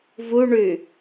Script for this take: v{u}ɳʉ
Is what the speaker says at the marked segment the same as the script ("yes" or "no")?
yes